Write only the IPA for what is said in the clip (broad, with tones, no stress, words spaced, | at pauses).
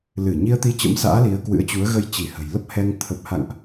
lɨ˧˩ ɲi˧ə̯ t̪i˧t͡ɕə̰˧˥msa̰ː˧˥ li˨˦ə̯kwɨ̰˧˥ə̯t͡ɕu˨˦ə̯ ɣə˧jt͡ɕi˧˩hə̤˨˩j lə˦˥p̚hɛ˧ŋ t̪ʰə˨˩p̚ha̰˧˨ŋʔ